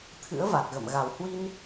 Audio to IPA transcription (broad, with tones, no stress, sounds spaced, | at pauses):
t̪ʰ ɨ̰˧˥ ə̯ v a˨˩ t̚ ɣ ə̰˧˨ m ɣ a˨˩ w h w i˧ n